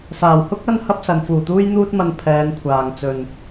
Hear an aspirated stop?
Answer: yes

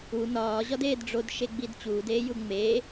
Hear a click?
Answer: no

